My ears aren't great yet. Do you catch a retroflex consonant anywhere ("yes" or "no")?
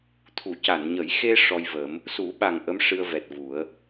yes